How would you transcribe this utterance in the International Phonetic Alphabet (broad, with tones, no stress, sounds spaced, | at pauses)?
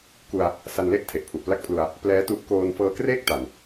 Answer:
k u˧ a̯ | s a˧ n l e˥˩ ʔ tʰ e˨˩ ʔ pʰ u˨˩ ʔ p l a˥˩ k̚ pʰ l u˧ a̯ | p l ɛː˦˥ t u˦˥ ʔ k oː˧ n f ɤː˧ k r eː˥˩ k̚ t a˨˩ n